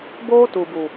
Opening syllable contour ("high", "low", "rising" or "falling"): high